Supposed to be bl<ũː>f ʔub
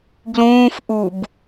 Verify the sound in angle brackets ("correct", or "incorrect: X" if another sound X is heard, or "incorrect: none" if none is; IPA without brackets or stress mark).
correct